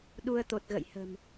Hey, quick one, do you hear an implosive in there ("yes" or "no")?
yes